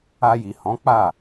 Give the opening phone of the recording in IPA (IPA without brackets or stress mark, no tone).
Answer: a